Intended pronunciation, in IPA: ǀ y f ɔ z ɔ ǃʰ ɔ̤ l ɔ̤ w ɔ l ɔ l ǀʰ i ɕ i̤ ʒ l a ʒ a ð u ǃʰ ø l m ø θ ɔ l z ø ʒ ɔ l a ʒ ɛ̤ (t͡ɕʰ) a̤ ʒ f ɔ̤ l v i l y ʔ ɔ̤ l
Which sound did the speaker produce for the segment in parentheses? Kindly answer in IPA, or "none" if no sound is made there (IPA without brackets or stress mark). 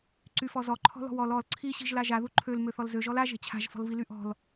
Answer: t͡ɕʰ